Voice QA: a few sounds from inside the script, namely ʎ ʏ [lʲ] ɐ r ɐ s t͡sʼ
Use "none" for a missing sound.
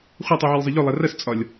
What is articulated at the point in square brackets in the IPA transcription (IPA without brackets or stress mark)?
lˠ